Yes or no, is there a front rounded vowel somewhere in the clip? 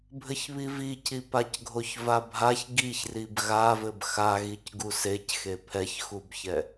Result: no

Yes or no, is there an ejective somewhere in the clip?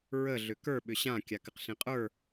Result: yes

